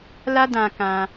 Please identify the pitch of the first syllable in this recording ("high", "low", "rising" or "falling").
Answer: high